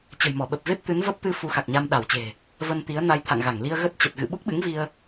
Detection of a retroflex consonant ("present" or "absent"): absent